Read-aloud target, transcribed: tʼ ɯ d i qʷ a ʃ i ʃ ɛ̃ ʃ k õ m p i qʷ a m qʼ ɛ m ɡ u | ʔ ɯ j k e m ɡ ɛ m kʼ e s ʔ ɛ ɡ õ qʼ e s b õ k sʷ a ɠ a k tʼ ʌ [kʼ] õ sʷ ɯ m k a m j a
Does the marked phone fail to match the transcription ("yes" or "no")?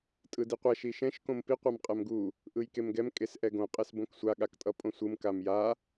yes